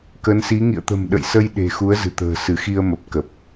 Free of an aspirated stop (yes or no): yes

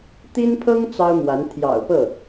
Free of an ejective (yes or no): yes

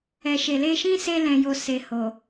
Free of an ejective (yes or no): yes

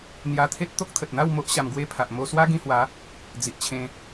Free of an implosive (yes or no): yes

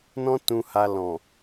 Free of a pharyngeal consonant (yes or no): yes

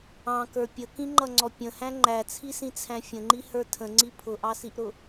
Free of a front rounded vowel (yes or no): yes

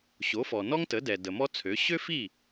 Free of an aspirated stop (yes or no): no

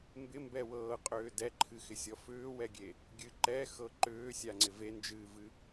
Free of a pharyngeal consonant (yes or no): yes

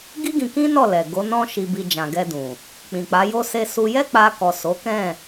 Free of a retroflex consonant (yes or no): yes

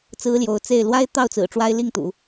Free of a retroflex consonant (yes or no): no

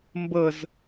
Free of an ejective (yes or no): yes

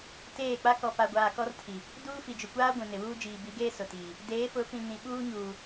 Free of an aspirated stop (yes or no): no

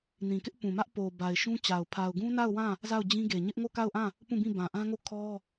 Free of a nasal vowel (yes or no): no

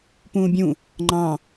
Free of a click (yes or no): no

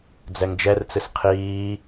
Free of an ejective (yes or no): yes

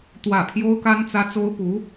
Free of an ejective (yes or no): yes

